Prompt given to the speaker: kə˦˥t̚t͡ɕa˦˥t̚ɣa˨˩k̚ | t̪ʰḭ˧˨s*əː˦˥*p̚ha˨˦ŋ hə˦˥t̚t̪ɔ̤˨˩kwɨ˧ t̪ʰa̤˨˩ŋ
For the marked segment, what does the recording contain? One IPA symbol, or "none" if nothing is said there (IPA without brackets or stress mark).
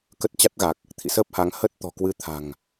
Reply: əː˦˥